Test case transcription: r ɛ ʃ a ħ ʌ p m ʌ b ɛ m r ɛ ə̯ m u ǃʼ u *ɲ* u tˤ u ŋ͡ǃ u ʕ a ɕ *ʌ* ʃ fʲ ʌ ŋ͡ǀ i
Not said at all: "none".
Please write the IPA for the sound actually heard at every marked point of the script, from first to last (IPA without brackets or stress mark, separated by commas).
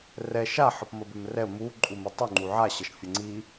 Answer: m, ʌ